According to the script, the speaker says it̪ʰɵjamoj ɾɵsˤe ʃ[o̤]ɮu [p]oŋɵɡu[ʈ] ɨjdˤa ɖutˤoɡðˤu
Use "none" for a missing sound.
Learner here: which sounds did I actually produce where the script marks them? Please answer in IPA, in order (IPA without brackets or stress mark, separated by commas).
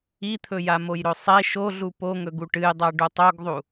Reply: o, p, ʈ